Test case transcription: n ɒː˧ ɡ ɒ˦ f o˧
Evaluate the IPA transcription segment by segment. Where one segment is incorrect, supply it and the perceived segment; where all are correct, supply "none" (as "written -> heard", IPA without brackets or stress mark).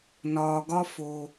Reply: none